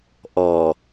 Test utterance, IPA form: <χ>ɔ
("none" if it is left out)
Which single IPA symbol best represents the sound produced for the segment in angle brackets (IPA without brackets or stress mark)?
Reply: ʔ